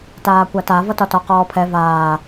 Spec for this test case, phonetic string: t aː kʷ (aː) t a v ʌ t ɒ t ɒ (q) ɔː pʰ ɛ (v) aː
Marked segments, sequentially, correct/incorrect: incorrect, correct, correct

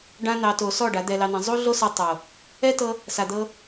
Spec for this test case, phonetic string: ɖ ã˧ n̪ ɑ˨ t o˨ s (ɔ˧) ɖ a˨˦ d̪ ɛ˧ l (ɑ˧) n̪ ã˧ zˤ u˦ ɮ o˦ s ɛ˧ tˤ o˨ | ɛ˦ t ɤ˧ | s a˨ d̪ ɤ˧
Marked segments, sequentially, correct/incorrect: incorrect, correct

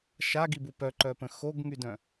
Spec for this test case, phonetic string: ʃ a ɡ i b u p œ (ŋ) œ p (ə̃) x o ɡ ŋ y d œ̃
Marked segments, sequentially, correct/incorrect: incorrect, correct

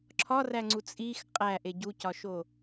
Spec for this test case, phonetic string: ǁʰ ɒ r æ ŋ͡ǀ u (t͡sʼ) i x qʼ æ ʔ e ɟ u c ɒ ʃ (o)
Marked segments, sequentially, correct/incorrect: correct, correct

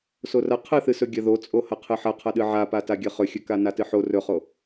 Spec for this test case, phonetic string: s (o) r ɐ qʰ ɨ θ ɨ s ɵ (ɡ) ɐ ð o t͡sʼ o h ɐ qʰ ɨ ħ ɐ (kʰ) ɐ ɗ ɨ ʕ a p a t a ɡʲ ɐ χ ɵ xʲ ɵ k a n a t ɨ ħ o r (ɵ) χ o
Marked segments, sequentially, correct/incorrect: correct, incorrect, incorrect, correct

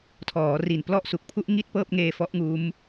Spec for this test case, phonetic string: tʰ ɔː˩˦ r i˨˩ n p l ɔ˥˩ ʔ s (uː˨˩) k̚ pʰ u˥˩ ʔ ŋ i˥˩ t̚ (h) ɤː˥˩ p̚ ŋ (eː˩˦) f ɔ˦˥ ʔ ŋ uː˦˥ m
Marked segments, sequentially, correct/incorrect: incorrect, incorrect, incorrect

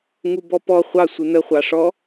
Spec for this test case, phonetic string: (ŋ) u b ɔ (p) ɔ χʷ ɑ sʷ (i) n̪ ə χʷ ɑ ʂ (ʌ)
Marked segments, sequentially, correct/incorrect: correct, correct, incorrect, incorrect

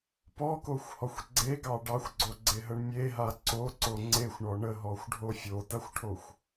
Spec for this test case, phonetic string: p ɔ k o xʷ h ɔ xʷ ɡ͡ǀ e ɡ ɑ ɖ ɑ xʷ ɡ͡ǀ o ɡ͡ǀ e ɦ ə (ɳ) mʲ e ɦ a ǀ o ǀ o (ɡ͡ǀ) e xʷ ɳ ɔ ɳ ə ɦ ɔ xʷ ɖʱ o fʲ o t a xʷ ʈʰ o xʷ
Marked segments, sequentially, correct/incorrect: correct, incorrect

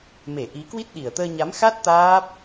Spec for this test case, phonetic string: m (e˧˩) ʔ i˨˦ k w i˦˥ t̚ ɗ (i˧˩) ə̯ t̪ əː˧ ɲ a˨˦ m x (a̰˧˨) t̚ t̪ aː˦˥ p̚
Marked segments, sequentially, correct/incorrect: correct, incorrect, incorrect

